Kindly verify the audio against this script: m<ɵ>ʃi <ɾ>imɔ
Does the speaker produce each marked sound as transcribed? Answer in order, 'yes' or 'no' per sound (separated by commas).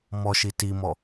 no, no